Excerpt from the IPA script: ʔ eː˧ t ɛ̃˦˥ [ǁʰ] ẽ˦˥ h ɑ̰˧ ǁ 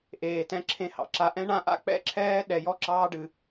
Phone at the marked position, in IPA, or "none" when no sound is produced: ǁʰ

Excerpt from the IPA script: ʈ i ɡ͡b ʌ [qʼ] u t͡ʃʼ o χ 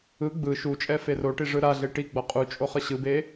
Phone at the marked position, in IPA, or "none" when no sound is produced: qʼ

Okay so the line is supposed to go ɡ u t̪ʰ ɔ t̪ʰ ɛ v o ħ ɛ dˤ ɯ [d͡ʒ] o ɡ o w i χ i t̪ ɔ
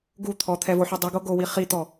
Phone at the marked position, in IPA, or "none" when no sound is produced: ɡ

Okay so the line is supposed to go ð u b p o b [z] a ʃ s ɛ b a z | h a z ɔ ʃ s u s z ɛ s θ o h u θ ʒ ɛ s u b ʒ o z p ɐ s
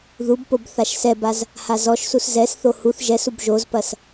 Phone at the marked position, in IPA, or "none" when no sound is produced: θ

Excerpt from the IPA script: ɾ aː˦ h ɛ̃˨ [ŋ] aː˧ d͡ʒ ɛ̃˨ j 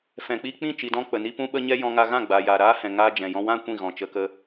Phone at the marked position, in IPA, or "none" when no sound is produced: ŋ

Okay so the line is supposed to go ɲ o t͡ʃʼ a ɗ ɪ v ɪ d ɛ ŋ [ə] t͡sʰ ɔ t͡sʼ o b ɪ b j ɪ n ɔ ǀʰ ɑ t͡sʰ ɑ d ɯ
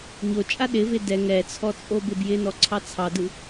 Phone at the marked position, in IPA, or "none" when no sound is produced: ɛ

